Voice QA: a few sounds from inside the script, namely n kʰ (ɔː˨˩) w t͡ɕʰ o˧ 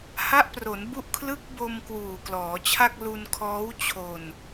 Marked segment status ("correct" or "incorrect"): incorrect